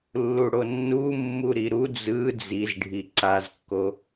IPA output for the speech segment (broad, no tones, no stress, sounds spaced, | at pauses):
lː u ɽ o nː u mː u ɾ i ɾ u d͡z ɯ d͡z i z ɖʱ i ǀ a z kː o